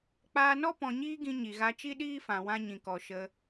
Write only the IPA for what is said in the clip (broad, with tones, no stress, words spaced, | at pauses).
k͡paː˧nɔ˦ pɔ̃˧ɲiː˦ɡĩ˧ɲi˨ ɣa˧t͡ʃi˦ɗiː˦fã˨ wã˧ɲĩ˨kɔ˨ ʃə˧